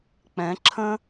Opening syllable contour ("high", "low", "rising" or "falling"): rising